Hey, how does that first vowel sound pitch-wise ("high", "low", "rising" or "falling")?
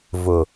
low